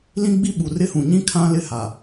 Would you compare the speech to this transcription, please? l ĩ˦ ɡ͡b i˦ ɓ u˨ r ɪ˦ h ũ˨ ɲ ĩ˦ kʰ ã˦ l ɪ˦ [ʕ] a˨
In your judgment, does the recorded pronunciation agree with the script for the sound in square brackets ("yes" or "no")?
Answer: no